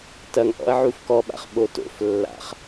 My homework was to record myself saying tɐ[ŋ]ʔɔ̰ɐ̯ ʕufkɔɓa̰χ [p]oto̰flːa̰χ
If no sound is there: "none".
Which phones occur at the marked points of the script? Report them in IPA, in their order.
ŋ, ɓ

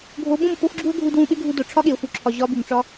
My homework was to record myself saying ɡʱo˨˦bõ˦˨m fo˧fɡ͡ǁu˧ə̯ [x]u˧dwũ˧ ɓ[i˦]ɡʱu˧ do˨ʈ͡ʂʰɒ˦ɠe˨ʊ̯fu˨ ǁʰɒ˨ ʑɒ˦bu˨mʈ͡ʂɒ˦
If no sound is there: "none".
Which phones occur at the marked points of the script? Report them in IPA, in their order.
ɡʱ, e˦

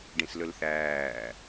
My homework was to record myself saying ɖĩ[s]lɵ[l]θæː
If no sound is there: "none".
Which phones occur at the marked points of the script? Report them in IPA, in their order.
s, l

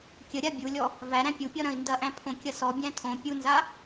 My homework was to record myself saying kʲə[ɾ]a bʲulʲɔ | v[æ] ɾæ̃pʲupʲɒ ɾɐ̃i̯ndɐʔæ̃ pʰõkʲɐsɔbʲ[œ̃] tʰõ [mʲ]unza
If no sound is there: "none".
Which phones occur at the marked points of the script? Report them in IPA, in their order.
ɾʲ, æ, æ̃, pʲ

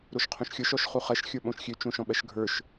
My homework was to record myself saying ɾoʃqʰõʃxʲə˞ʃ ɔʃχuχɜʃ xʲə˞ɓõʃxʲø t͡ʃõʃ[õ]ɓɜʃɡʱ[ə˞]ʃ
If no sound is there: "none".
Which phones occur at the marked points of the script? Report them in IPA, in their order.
ɔ̃, ə˞

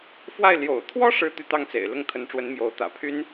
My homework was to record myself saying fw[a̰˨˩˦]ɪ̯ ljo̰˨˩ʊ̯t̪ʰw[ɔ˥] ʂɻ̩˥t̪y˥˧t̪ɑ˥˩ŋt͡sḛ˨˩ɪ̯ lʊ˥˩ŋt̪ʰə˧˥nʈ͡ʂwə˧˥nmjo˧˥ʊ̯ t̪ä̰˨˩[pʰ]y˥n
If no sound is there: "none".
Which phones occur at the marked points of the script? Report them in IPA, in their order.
a˥˩, ɔ˥, pʰ

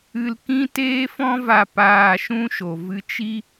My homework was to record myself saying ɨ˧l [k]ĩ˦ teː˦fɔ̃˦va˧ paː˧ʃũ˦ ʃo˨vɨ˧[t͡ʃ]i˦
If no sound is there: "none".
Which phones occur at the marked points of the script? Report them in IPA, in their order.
k, t͡ʃ

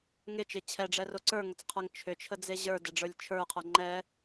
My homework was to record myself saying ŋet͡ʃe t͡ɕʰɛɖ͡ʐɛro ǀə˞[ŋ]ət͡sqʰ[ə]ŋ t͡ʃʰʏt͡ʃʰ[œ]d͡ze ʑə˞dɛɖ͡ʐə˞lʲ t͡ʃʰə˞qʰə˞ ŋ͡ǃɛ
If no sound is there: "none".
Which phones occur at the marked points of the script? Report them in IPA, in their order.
ŋ, ə˞, ə

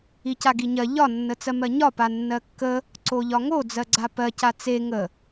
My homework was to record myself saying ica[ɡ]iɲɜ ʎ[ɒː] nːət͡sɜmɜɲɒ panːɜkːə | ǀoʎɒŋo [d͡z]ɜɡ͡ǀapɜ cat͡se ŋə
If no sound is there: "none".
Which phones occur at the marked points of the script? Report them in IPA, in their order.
ɡ, ɒ, d͡z

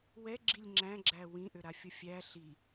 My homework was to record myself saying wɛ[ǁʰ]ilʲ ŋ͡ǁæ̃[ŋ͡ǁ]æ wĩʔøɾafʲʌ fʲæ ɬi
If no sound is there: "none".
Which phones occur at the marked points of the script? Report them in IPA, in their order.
ɡ͡ǁ, ɡ͡ǁ

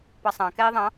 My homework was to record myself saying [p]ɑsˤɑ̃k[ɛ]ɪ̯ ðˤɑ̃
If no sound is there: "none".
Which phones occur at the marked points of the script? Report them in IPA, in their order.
p, ɛ

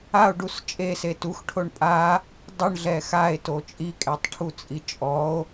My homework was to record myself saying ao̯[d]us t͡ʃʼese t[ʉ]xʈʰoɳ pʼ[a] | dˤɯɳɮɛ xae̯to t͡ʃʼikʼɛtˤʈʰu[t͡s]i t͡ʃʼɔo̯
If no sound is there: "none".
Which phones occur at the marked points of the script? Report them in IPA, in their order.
ɖ, u, a, t͡sʼ

